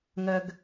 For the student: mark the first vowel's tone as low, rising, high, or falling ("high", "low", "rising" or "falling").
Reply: low